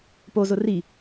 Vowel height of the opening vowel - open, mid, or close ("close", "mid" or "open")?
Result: mid